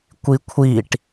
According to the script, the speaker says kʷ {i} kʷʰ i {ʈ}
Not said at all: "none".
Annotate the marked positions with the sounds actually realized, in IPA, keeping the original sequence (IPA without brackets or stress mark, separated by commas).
i, ʈ